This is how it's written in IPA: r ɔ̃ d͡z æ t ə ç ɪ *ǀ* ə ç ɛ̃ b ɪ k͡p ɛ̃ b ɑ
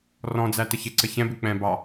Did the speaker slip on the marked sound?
no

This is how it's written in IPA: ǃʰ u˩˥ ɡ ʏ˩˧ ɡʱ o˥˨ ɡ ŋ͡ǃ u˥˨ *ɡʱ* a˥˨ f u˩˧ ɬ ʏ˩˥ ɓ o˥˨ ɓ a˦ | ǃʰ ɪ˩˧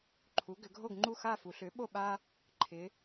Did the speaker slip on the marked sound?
yes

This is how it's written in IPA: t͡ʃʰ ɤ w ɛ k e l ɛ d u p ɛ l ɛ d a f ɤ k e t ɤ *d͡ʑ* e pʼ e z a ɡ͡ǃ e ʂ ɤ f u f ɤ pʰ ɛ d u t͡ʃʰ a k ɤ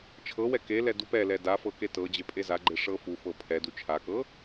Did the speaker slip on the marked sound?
no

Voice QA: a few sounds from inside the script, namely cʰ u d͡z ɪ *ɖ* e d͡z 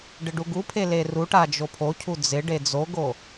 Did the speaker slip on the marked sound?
no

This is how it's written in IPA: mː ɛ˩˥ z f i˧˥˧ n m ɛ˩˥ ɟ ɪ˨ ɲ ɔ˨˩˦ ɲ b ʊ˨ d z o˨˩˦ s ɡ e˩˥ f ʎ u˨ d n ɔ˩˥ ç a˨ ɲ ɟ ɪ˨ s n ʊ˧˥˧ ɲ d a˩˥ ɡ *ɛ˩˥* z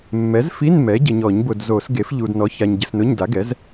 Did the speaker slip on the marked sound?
no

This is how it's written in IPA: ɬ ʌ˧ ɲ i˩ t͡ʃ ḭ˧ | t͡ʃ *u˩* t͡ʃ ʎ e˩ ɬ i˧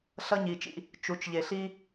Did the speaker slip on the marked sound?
no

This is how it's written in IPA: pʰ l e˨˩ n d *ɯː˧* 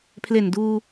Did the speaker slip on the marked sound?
yes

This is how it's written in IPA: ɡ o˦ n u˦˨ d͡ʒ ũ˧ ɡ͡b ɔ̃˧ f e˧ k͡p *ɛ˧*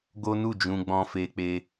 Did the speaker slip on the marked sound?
yes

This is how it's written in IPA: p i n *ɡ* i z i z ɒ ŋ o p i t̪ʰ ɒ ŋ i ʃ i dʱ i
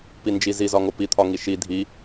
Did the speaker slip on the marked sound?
yes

